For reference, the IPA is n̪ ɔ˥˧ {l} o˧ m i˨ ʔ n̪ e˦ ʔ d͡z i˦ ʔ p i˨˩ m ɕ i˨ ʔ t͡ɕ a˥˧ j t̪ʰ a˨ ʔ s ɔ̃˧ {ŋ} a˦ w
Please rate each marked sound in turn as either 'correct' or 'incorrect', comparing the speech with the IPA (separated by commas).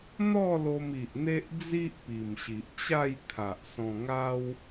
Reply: correct, correct